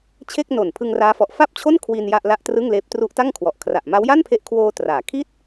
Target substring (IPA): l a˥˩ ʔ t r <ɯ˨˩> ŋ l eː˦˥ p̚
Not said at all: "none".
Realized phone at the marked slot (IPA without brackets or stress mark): ɯ˥˩